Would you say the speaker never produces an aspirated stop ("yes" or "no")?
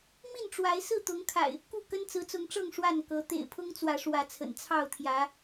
no